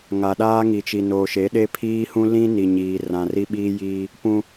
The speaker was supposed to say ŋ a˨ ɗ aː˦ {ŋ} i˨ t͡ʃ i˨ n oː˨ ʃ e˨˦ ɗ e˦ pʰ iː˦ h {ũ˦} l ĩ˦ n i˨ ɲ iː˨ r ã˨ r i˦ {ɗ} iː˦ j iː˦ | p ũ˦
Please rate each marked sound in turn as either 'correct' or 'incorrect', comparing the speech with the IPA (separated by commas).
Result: correct, correct, incorrect